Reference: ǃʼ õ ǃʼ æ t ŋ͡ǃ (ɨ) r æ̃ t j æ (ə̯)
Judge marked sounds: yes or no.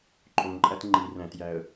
no, yes

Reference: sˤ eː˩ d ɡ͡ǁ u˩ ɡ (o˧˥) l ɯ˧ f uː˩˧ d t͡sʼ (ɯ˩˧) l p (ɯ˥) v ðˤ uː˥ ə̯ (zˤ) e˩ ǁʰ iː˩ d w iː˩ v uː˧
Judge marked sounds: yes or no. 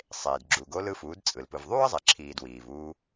yes, no, no, yes

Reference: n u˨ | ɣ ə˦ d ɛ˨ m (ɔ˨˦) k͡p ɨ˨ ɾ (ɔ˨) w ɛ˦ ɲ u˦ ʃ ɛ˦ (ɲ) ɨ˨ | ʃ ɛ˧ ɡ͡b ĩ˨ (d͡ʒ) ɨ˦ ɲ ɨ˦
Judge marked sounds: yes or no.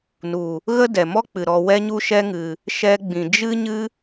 no, yes, no, yes

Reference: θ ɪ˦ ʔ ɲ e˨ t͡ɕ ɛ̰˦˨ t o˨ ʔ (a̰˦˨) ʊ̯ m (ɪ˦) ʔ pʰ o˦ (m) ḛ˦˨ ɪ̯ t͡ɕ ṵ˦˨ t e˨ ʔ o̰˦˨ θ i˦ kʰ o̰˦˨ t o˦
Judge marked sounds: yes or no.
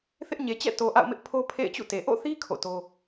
yes, yes, no

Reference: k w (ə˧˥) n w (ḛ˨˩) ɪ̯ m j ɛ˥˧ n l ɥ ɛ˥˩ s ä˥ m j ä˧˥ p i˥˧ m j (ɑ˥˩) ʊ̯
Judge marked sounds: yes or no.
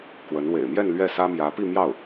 yes, yes, yes

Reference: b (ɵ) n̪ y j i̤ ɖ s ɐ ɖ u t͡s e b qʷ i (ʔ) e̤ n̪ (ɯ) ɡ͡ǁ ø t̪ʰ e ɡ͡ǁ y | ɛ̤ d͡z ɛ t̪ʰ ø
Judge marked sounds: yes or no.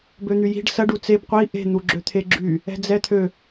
no, yes, no

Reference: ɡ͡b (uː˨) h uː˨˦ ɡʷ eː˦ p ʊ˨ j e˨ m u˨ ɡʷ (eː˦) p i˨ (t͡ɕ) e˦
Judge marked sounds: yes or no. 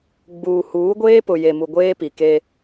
yes, yes, no

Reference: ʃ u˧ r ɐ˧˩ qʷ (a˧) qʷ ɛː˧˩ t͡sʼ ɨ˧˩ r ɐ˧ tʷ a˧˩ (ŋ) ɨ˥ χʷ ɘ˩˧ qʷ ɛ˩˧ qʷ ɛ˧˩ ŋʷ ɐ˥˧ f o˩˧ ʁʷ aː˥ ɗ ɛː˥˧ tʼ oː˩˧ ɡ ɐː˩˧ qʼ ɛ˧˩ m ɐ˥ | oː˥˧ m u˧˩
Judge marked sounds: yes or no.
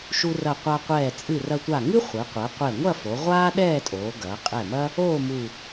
yes, yes

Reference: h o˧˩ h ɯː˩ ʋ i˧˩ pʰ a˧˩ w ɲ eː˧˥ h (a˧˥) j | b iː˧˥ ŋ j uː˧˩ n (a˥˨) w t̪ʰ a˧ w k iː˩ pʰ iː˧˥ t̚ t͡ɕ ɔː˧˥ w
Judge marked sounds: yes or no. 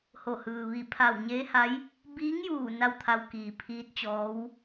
yes, yes

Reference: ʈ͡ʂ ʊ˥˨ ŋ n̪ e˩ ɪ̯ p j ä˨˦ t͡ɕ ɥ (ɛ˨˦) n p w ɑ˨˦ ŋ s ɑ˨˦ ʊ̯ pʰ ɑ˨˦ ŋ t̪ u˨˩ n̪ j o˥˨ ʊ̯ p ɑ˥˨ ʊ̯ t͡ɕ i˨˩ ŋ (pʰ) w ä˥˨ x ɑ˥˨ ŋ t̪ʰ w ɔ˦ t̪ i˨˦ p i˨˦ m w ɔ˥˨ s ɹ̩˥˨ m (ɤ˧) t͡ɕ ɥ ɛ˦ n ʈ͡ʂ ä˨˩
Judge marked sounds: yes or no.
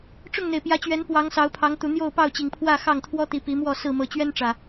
yes, yes, no

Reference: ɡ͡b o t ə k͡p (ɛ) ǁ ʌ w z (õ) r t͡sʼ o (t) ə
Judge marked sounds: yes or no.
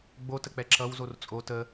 yes, no, yes

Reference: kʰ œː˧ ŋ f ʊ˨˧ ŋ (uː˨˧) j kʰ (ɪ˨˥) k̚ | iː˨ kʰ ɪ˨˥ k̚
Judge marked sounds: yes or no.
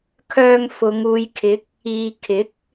yes, yes

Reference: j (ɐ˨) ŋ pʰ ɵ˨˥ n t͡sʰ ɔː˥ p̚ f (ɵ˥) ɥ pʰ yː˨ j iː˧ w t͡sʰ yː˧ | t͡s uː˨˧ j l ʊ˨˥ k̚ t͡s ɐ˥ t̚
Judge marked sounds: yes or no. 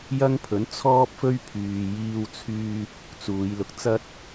no, yes

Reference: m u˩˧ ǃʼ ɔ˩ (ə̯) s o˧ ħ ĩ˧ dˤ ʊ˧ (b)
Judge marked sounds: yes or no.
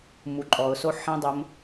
no, no

